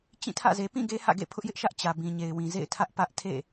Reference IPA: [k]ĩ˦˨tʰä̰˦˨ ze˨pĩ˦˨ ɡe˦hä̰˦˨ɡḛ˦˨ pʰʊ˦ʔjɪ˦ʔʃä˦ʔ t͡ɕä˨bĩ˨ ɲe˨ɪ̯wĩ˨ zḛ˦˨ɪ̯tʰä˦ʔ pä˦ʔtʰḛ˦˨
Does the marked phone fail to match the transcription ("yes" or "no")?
yes